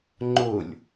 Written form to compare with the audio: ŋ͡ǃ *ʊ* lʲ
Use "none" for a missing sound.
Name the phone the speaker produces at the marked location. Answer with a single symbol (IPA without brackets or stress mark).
ʊ